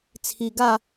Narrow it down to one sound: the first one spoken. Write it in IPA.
t͡sʰ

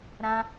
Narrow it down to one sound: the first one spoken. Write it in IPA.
ɾ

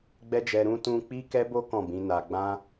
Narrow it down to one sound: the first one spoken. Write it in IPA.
ɡ͡b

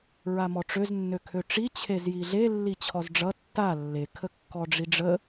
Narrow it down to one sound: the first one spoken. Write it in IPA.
ɹ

